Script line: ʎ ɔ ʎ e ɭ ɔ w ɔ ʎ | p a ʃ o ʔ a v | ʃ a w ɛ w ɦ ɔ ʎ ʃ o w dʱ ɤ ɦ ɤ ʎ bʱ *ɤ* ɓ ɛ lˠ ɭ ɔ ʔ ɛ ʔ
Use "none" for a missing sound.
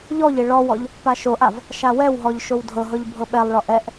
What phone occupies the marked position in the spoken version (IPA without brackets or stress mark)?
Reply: ɤ